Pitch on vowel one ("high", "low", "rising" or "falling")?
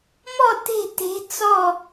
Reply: falling